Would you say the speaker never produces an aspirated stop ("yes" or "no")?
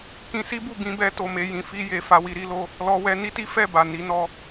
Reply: yes